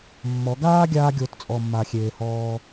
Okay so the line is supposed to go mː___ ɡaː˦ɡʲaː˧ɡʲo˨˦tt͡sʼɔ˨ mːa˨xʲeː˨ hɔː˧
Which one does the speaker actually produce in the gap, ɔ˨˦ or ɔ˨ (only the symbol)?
ɔ˨˦